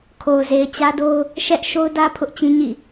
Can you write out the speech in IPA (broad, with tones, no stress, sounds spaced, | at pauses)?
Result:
kʰ o˨ ʊ̯ z e˨ ɪ̯ t͡ɕ ä˦ d o˦ ʊ̯ | ʃ ɛ˦ ʔ ʃ o˦ ʊ̯ d ä˦ pʰ ʊ˦ ʔ t͡ɕ ĩ˦ ɲ ḭ˦˨